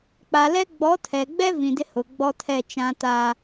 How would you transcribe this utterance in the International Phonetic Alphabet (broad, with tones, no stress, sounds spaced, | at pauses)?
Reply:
k͡p a˨ l ɛ˦ ɡ͡b ɔ˨˦ tʰ ɛ˨ ɡ͡b ɛ˦ v ĩ˨ d ɪ˦ h ʊ˨ ɡ͡b ɔ˦ tʰ ɛ˦˨ t͡ʃ ã˦ t a˦